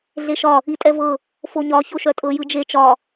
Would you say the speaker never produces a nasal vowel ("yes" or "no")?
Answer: yes